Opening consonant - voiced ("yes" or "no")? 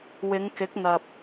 yes